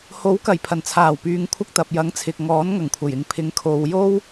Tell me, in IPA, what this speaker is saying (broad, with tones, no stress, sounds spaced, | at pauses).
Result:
h o˨˥ w k ɐ˨˩ j pʰ ɐ˨˩ n t͡sʰ aː˨˩ w p yː˨ ŋ kʷʰ ɐ˧ k̚ t̪ ɐ˨ p̚ j ɐ˨˥ ŋ t͡sʰ ɪ˨ k̚ ŋ ɔː˨˥ n ŋ ɐ˨˩ ŋ kʷʰ ɐ˨˩ j ɪ˨ ŋ pʰ ɪ˨˥ ŋ kʰ o˨˧ w j o˥ w